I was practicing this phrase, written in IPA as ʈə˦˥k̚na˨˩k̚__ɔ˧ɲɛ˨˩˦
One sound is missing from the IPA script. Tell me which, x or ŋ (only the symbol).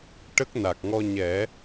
ŋ